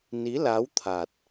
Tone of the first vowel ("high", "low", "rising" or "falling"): rising